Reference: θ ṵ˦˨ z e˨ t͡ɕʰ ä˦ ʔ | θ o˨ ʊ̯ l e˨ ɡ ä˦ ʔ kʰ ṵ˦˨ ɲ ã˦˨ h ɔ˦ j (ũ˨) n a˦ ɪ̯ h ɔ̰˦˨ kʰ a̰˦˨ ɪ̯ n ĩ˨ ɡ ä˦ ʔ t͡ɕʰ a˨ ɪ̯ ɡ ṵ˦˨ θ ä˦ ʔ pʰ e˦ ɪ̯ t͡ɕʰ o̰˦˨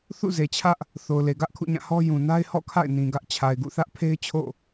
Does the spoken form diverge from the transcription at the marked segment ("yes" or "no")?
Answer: no